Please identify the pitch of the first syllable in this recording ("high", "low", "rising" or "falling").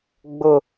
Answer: high